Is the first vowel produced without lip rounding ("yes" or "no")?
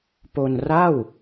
no